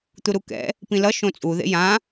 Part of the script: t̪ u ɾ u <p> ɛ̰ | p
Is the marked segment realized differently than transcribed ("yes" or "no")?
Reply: yes